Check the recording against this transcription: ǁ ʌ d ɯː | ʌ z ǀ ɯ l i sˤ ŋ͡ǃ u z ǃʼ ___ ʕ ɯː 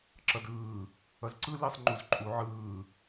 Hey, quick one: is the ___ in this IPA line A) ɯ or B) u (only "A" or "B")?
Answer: B